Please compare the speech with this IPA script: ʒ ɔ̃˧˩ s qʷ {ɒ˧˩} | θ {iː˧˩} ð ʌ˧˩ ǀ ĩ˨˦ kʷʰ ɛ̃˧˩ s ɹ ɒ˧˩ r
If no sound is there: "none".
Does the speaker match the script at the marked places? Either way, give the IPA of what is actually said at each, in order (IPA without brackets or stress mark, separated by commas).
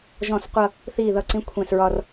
ʌ˧˩, iː˧˩